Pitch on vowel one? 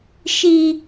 high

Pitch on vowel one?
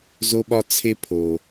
high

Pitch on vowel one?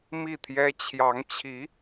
falling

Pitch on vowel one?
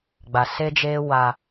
low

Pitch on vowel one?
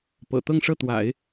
low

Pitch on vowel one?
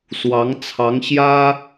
rising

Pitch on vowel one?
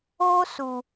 high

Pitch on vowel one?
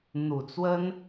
low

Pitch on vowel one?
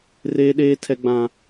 high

